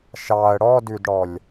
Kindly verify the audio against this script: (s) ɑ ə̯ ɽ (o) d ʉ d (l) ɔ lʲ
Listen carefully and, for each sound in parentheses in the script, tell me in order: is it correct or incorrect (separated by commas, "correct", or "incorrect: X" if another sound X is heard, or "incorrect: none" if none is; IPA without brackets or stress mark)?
incorrect: ʃ, incorrect: ɔ, incorrect: ɽ